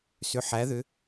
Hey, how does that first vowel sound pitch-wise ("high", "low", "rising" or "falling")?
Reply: rising